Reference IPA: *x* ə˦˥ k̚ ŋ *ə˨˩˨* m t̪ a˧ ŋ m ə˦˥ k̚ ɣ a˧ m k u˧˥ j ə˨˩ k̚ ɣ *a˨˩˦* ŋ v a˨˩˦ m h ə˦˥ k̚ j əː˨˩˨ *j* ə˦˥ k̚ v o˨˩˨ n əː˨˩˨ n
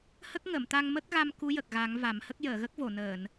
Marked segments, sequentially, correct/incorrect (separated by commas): incorrect, correct, correct, incorrect